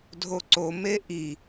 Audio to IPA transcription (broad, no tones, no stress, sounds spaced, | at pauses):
dʱ o ǀ o m e ʔ i